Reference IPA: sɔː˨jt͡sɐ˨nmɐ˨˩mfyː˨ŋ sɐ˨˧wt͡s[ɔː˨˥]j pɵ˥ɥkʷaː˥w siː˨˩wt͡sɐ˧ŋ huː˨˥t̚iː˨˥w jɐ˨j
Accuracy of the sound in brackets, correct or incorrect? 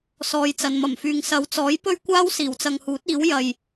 correct